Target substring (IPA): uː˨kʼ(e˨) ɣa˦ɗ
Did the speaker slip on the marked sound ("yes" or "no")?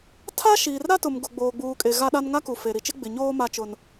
no